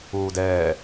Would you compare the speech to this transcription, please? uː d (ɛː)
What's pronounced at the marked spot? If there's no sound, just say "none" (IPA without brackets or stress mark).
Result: ɛː